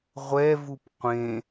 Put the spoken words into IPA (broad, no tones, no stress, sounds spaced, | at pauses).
ʁʷ ɛ v u p qʷ ẽ